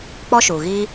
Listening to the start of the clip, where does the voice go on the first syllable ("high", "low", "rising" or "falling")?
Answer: high